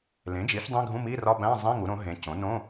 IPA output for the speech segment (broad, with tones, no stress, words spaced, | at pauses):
lẽ˩˥d͡ʒi˩˥ç dˤĩ˧˥˧ɡʱũ˧˥˧mi˧˥˧ rɒ˧˥˧bæ̃˧˥˧zˤĩ˧˥˧ ŋu˩˥ɾõ˩˥ɦẽ˩˥ cõ˩˥nõ˧˥˧